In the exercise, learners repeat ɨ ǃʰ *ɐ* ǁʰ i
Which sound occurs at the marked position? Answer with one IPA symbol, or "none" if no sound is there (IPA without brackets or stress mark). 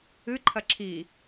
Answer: ɐ